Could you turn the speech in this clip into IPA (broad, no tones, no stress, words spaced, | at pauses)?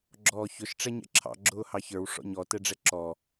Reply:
ɡ͡ǁɔːçʊʃ ʈ͡ʂɛɲɛ̰ǁʰɑ̰ ɡ͡ǁʊːhɑçə˞w ʂɔ̰ɲɔ tɛɖ͡ʐɛǁɔ